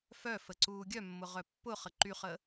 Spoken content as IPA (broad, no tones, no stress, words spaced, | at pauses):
fœfə ǀuːɡʲœmːʊ ʁœpːʊχə ǃyχəː